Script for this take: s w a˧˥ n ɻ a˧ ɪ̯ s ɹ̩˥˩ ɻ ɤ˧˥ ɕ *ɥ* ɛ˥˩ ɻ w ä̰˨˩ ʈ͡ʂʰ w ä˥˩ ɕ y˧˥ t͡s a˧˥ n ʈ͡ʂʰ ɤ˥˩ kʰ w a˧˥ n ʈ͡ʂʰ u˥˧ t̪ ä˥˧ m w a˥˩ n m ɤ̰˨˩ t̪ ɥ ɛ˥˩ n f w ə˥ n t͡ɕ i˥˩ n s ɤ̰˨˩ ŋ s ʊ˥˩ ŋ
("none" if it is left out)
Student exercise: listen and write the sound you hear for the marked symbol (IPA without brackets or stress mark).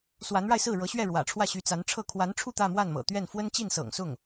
ɥ